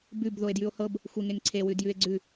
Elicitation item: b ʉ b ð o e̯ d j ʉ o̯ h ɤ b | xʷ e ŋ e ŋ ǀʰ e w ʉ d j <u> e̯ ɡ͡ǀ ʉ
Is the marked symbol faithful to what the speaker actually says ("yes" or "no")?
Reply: no